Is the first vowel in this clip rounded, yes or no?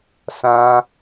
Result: no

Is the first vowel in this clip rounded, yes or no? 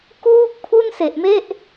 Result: yes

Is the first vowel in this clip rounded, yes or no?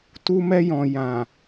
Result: yes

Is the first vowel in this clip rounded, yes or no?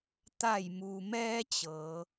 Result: no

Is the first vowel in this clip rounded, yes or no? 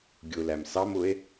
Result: yes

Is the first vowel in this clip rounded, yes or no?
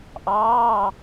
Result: no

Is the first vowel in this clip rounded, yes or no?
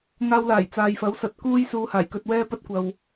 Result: no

